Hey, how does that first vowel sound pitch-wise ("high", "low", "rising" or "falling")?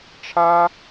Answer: high